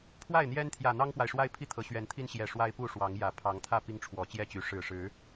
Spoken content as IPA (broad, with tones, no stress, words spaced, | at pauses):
pʰwa˥˨ɪ̯n̪jɛ˦n t̪ʰjä˨˩ n̪ɑ˦ŋpwa˨ɪ̯ʂwa˦ɪ̯ pʰi˥˨t̪ʰɤ˨˩ ɕɥɛ˨˦nt̪ʰi˦n ɕjɛ˨˩ ʂwa˦ɪ̯pu˥˨ʂwɑ˨˦ŋ jä˨˩ pʰɑ˨˦ŋt̪ʰä˥˨ pi˦ŋʈ͡ʂʰwɔ˨˩t͡ɕjɛ˥˨t͡ɕy˨˦ ʂɻ̩˨˩ʂɻ̩˨˦